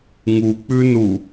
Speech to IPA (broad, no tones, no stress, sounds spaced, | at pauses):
ŋ u k͡p ʉ n u